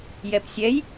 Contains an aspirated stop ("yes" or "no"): no